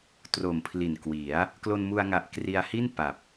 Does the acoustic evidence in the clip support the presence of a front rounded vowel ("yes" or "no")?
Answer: no